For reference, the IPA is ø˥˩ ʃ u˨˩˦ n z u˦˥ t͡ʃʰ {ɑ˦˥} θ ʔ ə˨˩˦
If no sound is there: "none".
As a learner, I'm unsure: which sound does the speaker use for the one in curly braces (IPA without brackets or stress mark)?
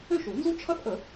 ʌ˦˥